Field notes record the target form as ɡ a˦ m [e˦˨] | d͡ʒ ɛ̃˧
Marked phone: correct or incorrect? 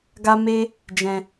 incorrect: e˦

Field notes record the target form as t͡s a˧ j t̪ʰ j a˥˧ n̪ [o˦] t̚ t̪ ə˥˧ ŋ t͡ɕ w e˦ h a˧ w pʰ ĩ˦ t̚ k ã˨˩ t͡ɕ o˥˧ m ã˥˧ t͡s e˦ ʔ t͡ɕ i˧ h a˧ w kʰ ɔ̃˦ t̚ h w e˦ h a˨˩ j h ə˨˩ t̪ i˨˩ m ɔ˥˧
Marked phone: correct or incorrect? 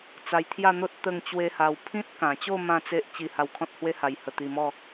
correct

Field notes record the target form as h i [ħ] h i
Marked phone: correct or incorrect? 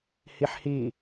correct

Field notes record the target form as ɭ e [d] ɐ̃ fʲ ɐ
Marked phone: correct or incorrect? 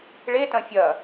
incorrect: t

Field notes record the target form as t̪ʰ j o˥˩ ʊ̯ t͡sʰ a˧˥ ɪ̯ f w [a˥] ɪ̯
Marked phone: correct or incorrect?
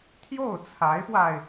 incorrect: a˧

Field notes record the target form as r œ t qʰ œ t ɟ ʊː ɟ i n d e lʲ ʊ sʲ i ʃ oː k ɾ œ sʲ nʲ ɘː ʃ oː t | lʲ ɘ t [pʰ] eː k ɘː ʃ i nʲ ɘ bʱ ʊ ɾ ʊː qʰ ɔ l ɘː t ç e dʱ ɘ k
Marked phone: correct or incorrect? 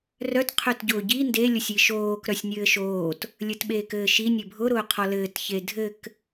incorrect: ɓ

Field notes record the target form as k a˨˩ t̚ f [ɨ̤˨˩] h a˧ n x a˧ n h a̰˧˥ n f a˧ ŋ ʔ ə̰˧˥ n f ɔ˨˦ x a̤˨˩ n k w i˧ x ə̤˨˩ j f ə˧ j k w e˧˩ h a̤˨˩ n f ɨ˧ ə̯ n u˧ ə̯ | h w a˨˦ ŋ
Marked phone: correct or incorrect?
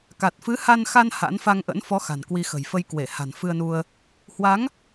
incorrect: ɨ˨˦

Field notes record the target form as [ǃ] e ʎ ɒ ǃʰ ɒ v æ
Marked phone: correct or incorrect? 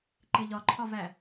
correct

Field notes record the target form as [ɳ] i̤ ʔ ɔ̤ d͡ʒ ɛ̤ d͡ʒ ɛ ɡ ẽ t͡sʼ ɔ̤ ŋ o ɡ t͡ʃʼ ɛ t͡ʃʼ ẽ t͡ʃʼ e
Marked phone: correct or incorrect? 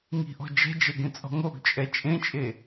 incorrect: ŋ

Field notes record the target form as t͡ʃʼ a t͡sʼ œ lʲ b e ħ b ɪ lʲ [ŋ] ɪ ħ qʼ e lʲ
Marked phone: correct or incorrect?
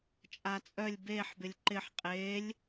incorrect: ǃ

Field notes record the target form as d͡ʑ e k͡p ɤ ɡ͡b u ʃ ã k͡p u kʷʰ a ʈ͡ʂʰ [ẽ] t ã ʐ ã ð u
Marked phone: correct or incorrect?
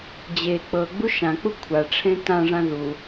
correct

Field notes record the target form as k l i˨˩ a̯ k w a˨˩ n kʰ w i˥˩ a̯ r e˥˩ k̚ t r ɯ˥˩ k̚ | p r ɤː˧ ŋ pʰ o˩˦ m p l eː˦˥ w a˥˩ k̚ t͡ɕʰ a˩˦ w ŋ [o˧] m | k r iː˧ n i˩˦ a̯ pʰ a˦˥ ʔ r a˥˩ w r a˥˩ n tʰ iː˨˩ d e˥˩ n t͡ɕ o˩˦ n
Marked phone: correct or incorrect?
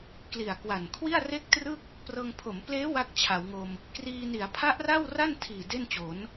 correct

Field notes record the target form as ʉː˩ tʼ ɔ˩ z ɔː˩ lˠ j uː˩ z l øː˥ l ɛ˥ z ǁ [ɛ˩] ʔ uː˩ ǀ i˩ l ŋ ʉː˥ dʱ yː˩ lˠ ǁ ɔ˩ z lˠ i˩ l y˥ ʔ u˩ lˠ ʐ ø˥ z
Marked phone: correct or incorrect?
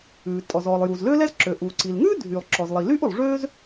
incorrect: ø˩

